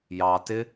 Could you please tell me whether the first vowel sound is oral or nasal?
oral